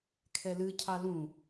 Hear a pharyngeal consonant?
no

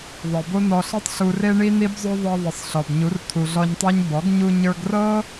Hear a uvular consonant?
no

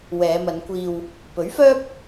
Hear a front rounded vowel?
yes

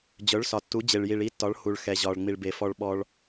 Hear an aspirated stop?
no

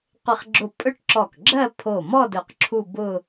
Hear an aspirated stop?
yes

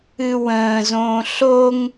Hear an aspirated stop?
no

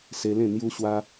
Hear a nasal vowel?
yes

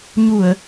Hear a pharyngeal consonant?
no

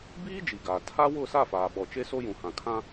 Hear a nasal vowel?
yes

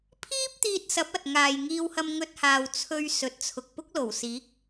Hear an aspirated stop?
yes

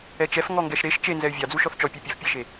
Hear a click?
no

